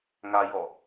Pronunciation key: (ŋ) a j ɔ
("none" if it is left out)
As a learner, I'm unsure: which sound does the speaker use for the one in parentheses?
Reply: ŋ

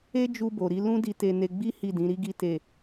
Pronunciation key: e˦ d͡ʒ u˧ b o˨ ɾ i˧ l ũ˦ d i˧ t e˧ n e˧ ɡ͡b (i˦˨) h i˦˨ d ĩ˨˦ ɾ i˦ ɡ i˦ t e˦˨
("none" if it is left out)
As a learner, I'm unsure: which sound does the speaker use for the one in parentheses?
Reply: i˦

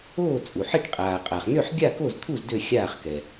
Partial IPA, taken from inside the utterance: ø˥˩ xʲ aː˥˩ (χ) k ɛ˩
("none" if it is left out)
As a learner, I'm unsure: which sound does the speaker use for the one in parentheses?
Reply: χ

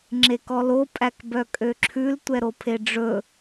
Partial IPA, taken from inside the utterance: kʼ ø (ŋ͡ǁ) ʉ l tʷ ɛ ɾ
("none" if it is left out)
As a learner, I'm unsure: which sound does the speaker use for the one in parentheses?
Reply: ǁʰ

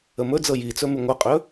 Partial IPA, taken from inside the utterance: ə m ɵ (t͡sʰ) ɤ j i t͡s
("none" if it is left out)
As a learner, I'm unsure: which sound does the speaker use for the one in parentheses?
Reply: d͡z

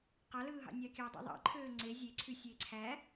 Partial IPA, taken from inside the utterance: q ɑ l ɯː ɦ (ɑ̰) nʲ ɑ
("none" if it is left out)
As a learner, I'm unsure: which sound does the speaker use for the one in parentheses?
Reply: ɑ̰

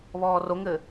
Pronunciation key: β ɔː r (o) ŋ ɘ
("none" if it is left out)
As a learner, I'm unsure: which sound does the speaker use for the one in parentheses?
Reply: o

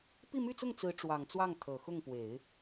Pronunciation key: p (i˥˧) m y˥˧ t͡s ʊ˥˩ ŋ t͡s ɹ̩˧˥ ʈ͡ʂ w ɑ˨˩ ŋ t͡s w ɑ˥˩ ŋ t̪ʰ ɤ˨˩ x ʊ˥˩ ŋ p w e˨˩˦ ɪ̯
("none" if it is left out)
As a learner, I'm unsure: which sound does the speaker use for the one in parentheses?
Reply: i˥˧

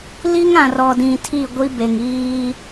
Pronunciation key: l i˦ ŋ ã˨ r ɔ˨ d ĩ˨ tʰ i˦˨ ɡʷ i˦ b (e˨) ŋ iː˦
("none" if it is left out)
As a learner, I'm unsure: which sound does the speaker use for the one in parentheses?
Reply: e˨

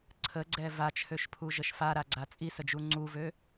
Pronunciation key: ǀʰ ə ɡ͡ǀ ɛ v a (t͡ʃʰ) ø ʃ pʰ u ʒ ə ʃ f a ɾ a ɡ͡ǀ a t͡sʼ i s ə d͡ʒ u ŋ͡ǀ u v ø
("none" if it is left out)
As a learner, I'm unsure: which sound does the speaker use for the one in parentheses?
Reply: t͡ʃʰ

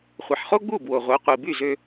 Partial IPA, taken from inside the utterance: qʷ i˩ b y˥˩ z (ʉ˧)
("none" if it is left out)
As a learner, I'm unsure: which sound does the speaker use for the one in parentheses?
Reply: ø˧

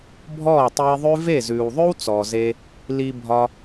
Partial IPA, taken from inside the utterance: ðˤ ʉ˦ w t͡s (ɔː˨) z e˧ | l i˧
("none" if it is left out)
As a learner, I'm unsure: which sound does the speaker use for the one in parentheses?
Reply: ɔː˨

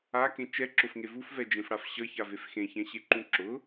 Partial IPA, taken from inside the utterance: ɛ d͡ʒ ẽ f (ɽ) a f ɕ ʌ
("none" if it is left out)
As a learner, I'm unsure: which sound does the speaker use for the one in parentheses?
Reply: ɽ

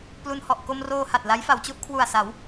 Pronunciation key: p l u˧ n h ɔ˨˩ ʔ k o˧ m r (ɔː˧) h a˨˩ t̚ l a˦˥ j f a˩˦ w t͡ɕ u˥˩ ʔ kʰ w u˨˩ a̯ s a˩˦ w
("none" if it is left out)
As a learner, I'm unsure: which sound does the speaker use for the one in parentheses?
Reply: oː˧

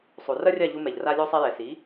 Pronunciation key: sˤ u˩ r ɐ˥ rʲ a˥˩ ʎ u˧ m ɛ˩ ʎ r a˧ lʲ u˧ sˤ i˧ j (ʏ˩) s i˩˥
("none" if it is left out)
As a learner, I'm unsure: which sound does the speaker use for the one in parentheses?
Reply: ɛ˩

